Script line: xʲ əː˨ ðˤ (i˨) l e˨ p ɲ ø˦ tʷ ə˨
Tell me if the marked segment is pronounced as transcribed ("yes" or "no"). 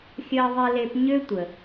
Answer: yes